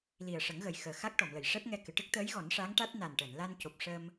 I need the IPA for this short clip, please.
l i˨˩ ə̯ ʂ ə˨˩˦ ŋ ɣ ə˨˩ j x əː˨˩ x a˦˥ k̚ ʈ ɔ˨˩˨ m l ə˨˩˨ j ʂ ɛ˦˥ p̚ ŋ ɛ˧ k ɨ˨˩˨ ʈ ɨ˦˥ k̚ t̪ əː˧˥ j ɣ ɔ˨˩˦ n ʂ a˧˥ ŋ ʈ a˦˥ t̚ n a˨˩ n ʈ əː˨˩˨ n l a˧ n c o˨˩ p̚ ʂ ə˧ m

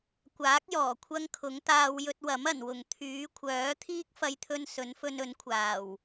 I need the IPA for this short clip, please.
kʷ aː˨˥ k̚ j ɔː˨˩ kʷʰ ɐ˥ ŋ kʰ ʊ˨˥ ŋ t̪ aː˧ w j ɵ˧ t̚ w ɐ˨˥ m ɐ˨˩ n w ʊ˨˩ ŋ t̪ʰ yː˨˥ kʷʰ œː˨˥ t̪ʰ iː˥ k̚ f ɐ˧ j t̪ʰ ɵ˧ n s ɵ˨˥ n f ɵ˧ n ɵ˨˥ n kʷʰ aː˨˩ w

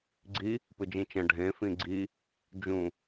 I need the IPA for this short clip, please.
ɡ͡ǀ i | p ɨ d͡ʒ ĩ t͡ʃ ɐ̃ ɖʱ ẽ f ĩ ɡ͡ǀ i | d͡ʒ ũ

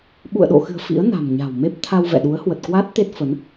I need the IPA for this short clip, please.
ɓ ṵ˧˨ ə̯ ɗ o̰˧˨ x ɨ̤˨˩ ə̯ f ḭ˧˥ ə̯ n a̤˨˩ m ɲ a̤˨˩ w m e˦˥ p̚ t̪ʰ a˧ w v ɛ̰˧˨ ɗ u˨˦ ə̯ h w ə˨˩ t̚ k w a˦˥ t̚ t̪ e˦˥ t̚ f ə˨˦ n

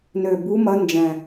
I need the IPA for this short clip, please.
n ø˨˩ b u˧˥ m ɐ˧˥ n d͡ʒ ɛ̃˨˩

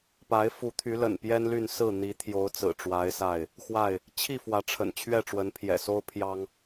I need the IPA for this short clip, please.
p a˨˦ ɪ̯ f u˨˦ t̪ʰ y˨˦ l ə̰˨˩ n p j ɛ˦ n l y˥˨ n s ɹ̩˥˨ n̪ i˨˦ t̪ʰ j o˨˦ ʊ̯ t͡s ɹ̩˨˩ ʈ͡ʂ w a˨˦ ɪ̯ s a˥˨ ɪ̯ | x w a˥˨ ɪ̯ | t͡ɕʰ i˥˨ f w ä˨˦ ʈ͡ʂʰ ə̰˨˩ n t͡ɕʰ ɥ ɛ˥˨ ʈ͡ʂ w ə˨˦ n pʰ j ɛ̰˨˩ s o˦ ʊ̯ pʰ j ɑ˦ ŋ

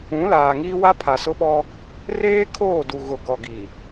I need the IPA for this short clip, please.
ũ˨˦ l aː˨ ŋ iː˦ w a˦ pʰ a˨ s ʊ˦ ɓ ɔ˦ | r eː˦ kʰ oː˦˨ d u˨ ɣ ʊ˨ ɡ ɔ˨ ɡ i˨

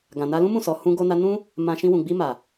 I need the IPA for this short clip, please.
ɡ ã˨ n a˧ l ũ˦ m ũ˦˨ s ɔ˨ h ũ˧ ɡ o˧ n a˧ n ũ˦ | m ã˧ ʃ ĩ˧ w ũ˨ ɡ͡b i˧ m a˨

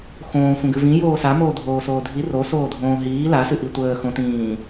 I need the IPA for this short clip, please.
x õː sʷ ə̃ ɡ ɨ v ĩ j oː s a m oː dʱ oː s oː dʱ i r o s oː dʱ õː ɦ iː l a s ɨ ʔ i tʷ əː x õ t ĩː

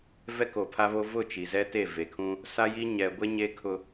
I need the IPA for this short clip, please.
v ɛ˦ k o˨ pʰ a˦ β o˦ v ʊ˦˨ t͡ʃ i˨ z ɛ˦ t e˦˨ v e˨ kʰ ũ˦ | s a˦ j i˦ ɲ ɛ˨ ɡʷ e˦ ɲ e˦ kʰ ʊ˦

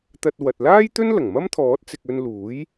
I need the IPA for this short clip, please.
t̪ ɐ˧ t̚ w ɐ˨ t̚ l aː˥ j t̪ ɵ˥ n l ɐ˨˩ ŋ m ɐ˥ m t̪ʰ ɔː˨˥ t̚ t͡s ɪ˨ k̚ ɵ˧ n l uː˨˥ j

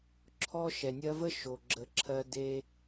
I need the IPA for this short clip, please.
ǁʰ ɔ˦ ʃ ɛ˨ nʲ ɜ˦ v ə˦ ʃ o˨ ɡ͡ǁ ə˨˦ ǁʰ ɜ˧ d e˧

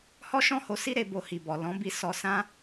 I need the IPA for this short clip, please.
h ɔ˦ ʃ ɔ̃˦˨ h o˧ s i˧ ɾ e˨ b o˧ h i˨ b ɔ˨ l ɔ̃˨˦ b i˧ s ɔ˧ s ã˦

